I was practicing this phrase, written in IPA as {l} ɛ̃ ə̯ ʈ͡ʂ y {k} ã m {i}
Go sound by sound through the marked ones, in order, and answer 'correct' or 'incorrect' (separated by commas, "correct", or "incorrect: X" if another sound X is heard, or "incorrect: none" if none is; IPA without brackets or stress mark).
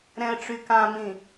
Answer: incorrect: ɾ, correct, incorrect: ĩ